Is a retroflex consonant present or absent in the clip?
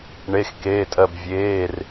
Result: present